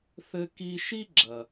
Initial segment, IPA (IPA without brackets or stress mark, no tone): θ